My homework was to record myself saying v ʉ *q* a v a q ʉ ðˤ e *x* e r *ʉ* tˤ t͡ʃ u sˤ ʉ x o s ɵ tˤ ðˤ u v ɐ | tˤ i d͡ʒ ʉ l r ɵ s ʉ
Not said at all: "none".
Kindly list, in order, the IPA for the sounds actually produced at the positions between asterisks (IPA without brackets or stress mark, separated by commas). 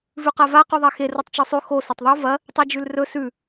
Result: q, x, u